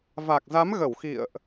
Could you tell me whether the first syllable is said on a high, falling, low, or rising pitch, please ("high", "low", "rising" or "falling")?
low